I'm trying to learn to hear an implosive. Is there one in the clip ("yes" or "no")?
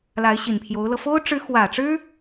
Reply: no